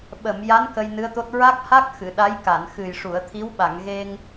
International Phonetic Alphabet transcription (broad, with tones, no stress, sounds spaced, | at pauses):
ɓ ə˨˩˨ m j a˧˥ n k ə˧ j n ɨ˧˥ ə̯ t̪ o˦˥ t̚ ɹ a˦˥ k̚ h a˦˥ k̚ x ɨ˨˩˨ ɗ a˧˥ j k a˨˩˨ n x ɨ˨˩ j ʂ u˨˩˨ ə̯ t̪ʰ i˧˥ w ɓ a˨˩˨ ŋ ɣ e˧ ŋ